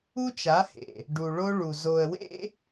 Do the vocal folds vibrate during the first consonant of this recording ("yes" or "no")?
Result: no